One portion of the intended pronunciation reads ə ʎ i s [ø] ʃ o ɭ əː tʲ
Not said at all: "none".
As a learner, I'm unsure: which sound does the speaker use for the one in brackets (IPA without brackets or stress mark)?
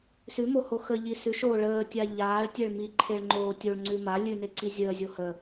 ʉ